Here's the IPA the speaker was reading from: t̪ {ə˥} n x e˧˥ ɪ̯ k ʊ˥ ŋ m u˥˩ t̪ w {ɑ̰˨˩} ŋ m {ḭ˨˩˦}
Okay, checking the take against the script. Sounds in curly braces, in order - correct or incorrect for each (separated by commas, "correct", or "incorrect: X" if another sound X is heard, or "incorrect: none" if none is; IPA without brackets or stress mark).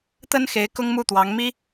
correct, incorrect: ɑ˧˥, incorrect: i˥